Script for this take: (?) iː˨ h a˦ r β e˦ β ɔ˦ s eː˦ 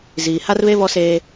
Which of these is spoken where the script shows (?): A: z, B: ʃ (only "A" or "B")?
A